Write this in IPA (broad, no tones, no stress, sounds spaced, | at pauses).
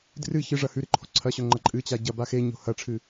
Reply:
d r ɨ ç ɨ ʐ ɐ h ʉ ɾ ɨ ǃʰ o̤ ǀʰ ɐ ɕ ɵ ŋ͡ǃ ɐ ǃʼ ɨ t͡ɕ a ɟ ɐ b a x e ɲ o̤ h ɐ ʈ͡ʂʰ ɨ